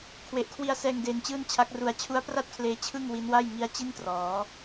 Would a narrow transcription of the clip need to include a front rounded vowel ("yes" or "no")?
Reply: no